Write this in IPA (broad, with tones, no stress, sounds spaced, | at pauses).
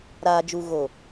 ɾ aː˨ d͡ʒ u˨ ɣ o˨